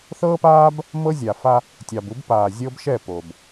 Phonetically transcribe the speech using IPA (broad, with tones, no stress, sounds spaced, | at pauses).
θ ɤː˦ p aː˦ b | m ɤ˦ zʲ a˨ f a˦ | tʲ ɑ˨ b u˦ b p aː˨ zʲ ɤ˦ b ʃ ɛ˦˨ p o˨ b